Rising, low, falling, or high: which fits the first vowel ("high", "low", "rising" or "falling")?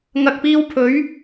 low